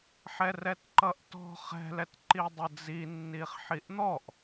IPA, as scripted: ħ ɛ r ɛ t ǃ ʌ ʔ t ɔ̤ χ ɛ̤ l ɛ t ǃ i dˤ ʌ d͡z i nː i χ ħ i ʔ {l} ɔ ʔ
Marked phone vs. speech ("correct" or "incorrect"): incorrect